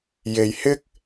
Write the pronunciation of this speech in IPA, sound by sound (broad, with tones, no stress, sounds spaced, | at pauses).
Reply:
j e˨ j h ɪ˥ k̚